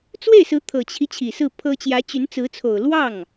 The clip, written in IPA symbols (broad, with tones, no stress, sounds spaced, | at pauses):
t͡s w e˥˩ ɪ̯ s ɹ̩˧˥ t̪ʰ ɤ˨˩ t͡ɕʰ i˦ t͡ɕʰ i˨˩ s ɹ̩˥˩ pʰ ɤ˥ t͡ɕ j ä˧˥ t͡ɕ y˧˥ n t͡s ɹ̩˧˥ t͡sʰ o˨˩ ʊ̯ l w ɑ˥˩ ŋ